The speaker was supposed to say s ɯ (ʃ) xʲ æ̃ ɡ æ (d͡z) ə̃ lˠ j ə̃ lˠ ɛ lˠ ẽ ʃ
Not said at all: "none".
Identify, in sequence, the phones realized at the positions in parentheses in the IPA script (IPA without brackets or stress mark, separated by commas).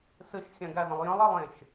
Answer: ʃ, ð